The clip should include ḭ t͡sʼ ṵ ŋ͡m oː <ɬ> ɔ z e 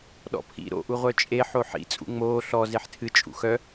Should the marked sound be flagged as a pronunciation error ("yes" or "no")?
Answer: no